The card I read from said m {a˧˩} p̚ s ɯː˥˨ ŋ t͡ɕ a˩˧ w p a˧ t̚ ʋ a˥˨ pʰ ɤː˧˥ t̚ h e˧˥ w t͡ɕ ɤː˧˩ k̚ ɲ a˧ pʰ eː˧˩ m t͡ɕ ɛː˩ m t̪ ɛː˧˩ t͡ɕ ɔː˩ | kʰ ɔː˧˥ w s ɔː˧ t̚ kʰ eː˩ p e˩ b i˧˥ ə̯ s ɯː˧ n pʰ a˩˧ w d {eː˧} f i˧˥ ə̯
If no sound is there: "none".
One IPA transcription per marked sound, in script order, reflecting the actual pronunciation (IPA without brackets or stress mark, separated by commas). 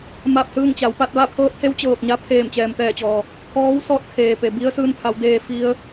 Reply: a˥˨, eː˧